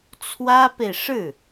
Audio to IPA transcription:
t͡sʰ w ä˥ p e˨ ɪ̯ ʂ ɻ̩˥˩

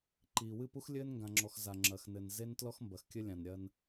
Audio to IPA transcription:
ǃ iː˨ w ɨ˦˨ p u˦ x lʲ ɘː˦ n ŋ ɡ ã˨ ŋ͡ǁ ɔ˨ x z a˨ ŋ͡ǁ ɐ˨ x n ɘ˨ n z e˦ n t l ɔ˦ x m b ɐ˨ x kʲ ɘ˦ lʲ ã˨ n ɾʲ ɐ˦ n

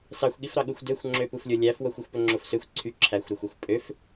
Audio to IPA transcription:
s ɑ xʷ ɠ i f ɾ ɑ ɠ u xʷ d ø xʷ ŋ͡ǁ ø p u f lʲ o lʲ æ f w o xʷ y xʷ p ø ŋ͡ǁ o f s ø xʷ ǀʰ y ǁʰ æ xʷ ɾ ø xʷ ɛ xʷ pʼ ø f

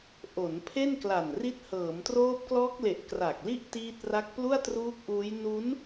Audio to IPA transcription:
ʔ o˩˦ n pʰ e˥˩ n k l a˨˩ n r i˦˥ t̚ h ɤː˩˦ m t r oː˦˥ p̚ k l ɔː˦˥ k̚ l e˨˩ ʔ k r a˨˩ k̚ l i˥˩ ʔ t iː˦˥ t̚ r a˦˥ k̚ p l u˥˩ a̯ t r uː˦˥ k̚ ʔ uː˦˥ j n u˦˥ n

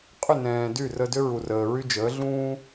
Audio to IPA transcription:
qʼ ʏ˦˨ n ɛ̃ː˨ d y˦˨ r ə˧ d ʏ˦ ɹ u˨ r əː˨ ɹ y˧ d͡ʒ əː˨˦ ɮ ũː˦

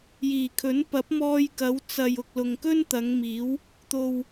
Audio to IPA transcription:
j iː˨˩ kʰ ɵ˨˥ n p ɐ˨˥ p̚ m ɔː˧ j k ɐ˨˧ w t͡s ɐ˨ j ʊ˨ k̚ l ʊ˨ ŋ k ɵ˥ n t̪ ɐ˨˧ ŋ m iː˨˥ w | t̪ o˨ w

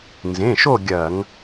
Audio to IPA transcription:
n z ẽ˩˧˩ ʃ o˦˨ ɡʲ ɐː˧˩˧ ŋ

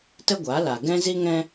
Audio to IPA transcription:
t ə˦ ɡʷ a˨˦ l aː˨ ɡ ɛ̃˦ z i˦ ŋ ɛ̃˦

